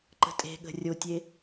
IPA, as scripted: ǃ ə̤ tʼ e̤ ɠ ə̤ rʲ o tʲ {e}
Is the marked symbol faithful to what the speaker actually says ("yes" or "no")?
yes